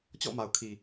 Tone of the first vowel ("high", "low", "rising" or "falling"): falling